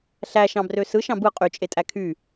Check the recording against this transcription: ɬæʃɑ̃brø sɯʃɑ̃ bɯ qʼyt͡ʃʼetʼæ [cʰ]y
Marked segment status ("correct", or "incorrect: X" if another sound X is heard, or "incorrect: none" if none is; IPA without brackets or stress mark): incorrect: kʰ